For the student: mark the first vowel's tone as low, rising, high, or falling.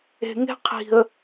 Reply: low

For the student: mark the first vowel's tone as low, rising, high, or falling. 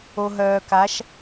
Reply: low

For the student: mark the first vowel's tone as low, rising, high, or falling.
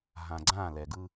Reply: low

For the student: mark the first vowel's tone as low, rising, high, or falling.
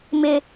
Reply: high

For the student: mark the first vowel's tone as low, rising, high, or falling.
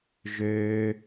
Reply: high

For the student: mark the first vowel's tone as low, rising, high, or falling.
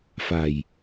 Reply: low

